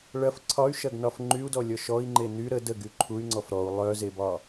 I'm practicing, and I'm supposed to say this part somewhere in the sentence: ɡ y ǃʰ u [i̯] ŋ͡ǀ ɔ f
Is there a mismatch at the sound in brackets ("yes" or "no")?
yes